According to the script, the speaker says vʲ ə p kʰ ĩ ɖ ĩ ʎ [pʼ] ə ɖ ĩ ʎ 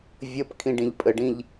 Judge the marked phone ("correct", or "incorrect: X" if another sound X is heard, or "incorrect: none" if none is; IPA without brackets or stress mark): correct